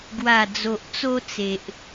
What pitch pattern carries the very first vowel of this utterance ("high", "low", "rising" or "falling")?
low